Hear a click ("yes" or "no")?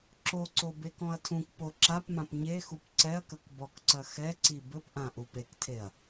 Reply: yes